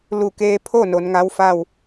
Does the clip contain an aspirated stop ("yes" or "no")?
yes